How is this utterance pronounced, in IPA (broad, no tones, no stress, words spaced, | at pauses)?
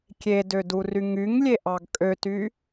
kʲedødury ŋyŋlʲeʔɑɡ kʼøty